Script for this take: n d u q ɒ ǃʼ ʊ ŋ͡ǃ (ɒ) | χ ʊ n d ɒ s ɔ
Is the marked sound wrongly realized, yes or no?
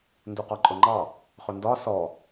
yes